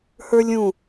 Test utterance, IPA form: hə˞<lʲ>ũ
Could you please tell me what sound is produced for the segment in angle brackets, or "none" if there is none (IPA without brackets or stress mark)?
lʲ